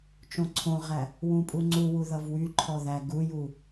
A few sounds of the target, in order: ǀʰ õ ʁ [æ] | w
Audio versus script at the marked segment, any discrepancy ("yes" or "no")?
no